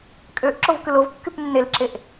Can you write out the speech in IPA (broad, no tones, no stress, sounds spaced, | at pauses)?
kʼ ø ʔ ǁ o v k ɯ l o v kː y p nː e l ǁ e ʔ